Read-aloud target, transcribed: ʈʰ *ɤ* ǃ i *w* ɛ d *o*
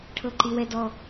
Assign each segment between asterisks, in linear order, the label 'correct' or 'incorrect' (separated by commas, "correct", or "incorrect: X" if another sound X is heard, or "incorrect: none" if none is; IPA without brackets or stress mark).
correct, correct, incorrect: ɔ